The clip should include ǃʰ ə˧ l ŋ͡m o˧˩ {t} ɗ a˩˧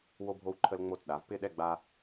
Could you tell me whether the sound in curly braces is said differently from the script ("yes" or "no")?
no